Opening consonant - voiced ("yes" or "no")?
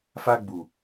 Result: no